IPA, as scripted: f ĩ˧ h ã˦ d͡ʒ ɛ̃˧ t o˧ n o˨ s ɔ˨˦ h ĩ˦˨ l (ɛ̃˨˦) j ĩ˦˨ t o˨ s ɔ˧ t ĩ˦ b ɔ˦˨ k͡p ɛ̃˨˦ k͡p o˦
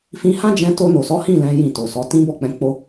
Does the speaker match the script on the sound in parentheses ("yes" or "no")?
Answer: yes